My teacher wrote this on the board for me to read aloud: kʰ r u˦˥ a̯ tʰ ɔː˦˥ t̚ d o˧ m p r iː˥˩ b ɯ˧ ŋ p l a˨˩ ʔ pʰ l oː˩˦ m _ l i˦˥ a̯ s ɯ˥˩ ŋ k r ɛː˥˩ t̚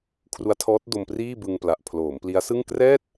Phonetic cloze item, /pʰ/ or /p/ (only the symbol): p